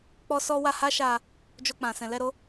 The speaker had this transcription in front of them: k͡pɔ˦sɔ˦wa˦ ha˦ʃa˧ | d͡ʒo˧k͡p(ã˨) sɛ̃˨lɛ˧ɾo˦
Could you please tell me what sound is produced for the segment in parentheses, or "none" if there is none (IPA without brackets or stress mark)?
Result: ã˨